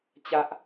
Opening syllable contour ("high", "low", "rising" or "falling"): high